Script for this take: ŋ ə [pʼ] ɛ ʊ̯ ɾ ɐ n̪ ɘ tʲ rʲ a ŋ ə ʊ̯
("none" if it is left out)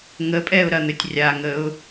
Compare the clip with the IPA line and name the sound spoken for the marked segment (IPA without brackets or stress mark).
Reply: pʼ